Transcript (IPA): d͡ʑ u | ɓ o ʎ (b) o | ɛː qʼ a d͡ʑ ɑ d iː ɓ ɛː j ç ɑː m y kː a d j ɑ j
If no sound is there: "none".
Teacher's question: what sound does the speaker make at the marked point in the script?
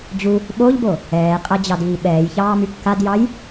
b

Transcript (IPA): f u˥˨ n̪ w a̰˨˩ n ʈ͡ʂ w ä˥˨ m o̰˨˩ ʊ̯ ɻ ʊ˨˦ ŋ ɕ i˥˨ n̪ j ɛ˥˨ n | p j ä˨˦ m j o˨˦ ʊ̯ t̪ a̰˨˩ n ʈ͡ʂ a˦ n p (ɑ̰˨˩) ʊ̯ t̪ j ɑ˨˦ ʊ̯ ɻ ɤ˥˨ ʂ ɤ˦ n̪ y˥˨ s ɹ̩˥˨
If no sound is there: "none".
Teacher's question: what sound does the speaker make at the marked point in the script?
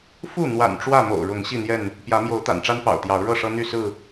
ɑ̰˨˩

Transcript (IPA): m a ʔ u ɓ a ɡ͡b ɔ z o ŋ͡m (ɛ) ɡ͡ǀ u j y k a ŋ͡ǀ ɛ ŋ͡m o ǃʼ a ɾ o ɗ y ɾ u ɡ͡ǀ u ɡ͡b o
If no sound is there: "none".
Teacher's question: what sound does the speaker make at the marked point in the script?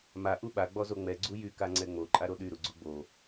ɛ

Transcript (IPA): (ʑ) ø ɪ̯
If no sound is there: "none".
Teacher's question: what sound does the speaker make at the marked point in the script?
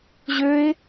ʑ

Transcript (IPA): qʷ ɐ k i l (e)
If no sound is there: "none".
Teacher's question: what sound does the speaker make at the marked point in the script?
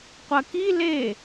e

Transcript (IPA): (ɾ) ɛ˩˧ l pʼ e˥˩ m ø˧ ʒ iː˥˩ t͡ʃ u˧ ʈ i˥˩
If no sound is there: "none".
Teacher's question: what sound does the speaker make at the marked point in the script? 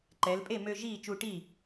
ǃ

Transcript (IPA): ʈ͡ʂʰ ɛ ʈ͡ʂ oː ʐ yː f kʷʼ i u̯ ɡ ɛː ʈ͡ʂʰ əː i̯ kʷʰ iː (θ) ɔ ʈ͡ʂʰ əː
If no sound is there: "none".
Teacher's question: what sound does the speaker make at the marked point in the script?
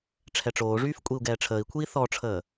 θ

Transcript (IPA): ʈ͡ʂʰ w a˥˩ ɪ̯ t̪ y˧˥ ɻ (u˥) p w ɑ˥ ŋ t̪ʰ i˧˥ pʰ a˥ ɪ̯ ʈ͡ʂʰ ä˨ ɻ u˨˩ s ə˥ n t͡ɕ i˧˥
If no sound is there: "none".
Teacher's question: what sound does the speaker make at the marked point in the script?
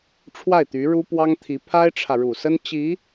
u˥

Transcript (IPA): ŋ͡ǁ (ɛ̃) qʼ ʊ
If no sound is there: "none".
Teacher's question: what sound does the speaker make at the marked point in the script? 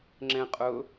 ɛ̃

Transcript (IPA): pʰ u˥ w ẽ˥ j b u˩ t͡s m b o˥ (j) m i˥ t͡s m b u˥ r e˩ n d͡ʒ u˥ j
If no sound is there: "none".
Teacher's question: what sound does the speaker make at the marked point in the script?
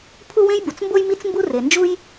j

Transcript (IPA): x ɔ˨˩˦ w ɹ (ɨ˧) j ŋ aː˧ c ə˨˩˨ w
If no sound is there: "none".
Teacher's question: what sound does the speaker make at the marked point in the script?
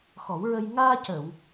ə˧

